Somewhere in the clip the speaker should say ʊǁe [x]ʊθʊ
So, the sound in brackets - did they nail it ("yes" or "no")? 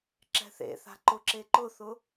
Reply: no